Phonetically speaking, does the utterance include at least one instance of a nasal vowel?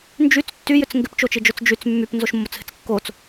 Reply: no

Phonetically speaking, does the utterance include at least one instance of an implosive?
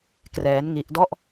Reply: no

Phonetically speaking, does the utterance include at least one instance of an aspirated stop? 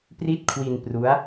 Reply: yes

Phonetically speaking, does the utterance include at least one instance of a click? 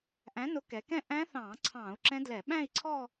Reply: yes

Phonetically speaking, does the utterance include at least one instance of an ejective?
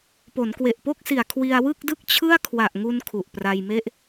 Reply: no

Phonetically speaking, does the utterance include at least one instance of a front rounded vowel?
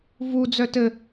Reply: yes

